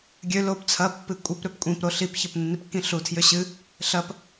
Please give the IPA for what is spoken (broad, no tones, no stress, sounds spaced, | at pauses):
ɡʲ ø l o p t͡sʰ ɐ pː ɨ kʷʼ i p ɾ ø p kʷʼ ĩ p ɾ o ɬ i p ç ɐ p nː i p kː ĩ ɬ u tʰ j ø ɕ ɨ | ɬ ɐ p